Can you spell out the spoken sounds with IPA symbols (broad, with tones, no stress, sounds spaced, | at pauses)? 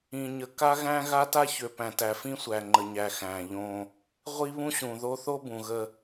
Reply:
ĩ˨ ɲ ə˨ k a˦ ɣ æ̃˦ ɣ a˦ t a˦ ç ø˨ p æ̃˨ t æ˨ f ĩ˦ sʷ æ˨ ŋ͡ǃ ə˨ ɲ æ˨ x æ̃˨ ʎ õ˦ | ʁʷ i˦ β ũ˦ ɕ ũ˨ ð o˦ θ o˦ b ũ˨ ɣ ə˦